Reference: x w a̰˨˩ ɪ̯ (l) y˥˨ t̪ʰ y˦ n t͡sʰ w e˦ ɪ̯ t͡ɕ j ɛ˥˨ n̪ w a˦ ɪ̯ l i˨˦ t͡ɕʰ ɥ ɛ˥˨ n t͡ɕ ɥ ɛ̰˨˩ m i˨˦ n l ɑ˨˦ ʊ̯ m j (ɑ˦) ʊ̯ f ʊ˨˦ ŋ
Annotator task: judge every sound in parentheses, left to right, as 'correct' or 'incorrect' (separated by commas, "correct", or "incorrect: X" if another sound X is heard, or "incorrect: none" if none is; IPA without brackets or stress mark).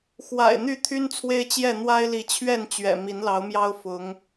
incorrect: n̪, correct